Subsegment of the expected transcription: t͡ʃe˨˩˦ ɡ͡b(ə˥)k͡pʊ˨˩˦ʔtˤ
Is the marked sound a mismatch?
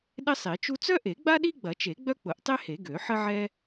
yes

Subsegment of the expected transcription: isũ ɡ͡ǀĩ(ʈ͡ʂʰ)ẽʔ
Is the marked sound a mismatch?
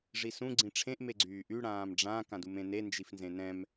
no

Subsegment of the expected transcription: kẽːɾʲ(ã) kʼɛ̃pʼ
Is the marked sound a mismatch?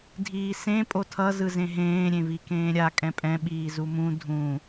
yes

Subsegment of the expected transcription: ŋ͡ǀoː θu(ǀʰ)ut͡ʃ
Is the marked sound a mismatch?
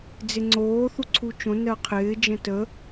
no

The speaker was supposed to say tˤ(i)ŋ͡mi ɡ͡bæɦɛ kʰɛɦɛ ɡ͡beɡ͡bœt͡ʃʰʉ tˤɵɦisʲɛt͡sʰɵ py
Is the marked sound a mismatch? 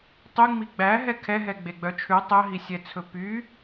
yes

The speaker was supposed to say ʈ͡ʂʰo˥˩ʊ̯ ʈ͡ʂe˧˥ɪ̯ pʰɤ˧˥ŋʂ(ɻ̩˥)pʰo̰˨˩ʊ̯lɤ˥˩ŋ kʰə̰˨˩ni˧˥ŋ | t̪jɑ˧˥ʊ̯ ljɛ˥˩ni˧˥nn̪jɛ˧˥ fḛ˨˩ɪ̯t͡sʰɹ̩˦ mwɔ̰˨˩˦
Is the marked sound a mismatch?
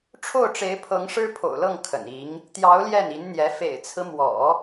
no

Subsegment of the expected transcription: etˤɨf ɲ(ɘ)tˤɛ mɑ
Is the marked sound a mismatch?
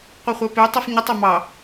no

